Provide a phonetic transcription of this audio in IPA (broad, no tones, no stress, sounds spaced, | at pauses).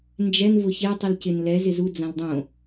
n d͡ʒ ɛ n v ʊ ç e tˤ i l c ɪ n l ɛ z ɪ z u d͡z ã l dˤ õ